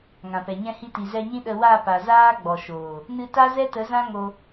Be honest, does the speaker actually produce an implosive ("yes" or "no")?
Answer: yes